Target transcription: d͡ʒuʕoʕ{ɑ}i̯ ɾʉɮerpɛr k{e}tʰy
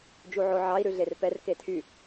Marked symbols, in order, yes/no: yes, yes

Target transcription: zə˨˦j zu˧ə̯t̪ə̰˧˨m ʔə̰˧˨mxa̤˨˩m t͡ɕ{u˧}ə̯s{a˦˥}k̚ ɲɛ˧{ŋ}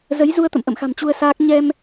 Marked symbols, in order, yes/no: yes, no, no

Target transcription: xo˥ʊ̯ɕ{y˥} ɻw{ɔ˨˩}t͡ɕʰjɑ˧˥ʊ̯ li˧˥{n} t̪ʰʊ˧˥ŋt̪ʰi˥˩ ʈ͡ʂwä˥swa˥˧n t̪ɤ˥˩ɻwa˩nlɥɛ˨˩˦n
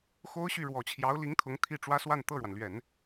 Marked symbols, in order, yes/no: no, yes, no

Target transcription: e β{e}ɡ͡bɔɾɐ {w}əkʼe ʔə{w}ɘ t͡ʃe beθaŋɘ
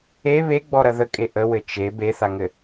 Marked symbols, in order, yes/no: yes, no, yes

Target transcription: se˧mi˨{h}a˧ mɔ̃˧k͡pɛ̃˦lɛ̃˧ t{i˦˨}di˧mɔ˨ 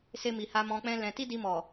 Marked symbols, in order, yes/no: yes, no

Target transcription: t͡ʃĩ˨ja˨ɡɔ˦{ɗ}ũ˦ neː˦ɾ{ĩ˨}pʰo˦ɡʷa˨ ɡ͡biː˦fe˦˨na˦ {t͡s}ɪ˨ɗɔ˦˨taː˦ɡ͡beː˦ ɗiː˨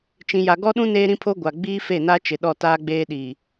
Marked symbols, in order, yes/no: yes, no, no

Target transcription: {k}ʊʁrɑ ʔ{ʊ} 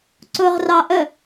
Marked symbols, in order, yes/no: no, no

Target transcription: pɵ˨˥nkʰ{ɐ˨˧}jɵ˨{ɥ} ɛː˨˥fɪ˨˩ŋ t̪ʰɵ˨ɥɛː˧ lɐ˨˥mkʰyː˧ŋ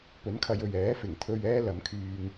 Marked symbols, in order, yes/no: yes, yes

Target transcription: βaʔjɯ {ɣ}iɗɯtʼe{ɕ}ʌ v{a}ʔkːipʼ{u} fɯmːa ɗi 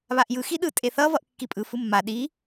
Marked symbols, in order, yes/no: no, no, no, no

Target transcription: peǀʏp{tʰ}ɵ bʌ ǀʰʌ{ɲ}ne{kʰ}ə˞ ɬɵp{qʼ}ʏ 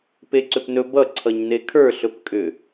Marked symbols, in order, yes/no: no, yes, yes, no

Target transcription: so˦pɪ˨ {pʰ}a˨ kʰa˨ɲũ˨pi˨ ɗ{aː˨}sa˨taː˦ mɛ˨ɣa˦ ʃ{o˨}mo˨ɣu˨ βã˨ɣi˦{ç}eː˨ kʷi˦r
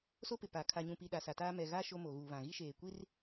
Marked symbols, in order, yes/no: no, no, no, no

